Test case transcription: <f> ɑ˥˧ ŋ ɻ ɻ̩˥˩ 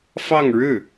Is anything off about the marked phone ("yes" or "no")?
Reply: no